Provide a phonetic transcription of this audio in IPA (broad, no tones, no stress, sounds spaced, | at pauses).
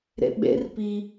ɾ ḛ ɓ ḛ r p i